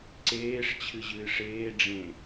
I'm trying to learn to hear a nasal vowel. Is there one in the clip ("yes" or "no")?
yes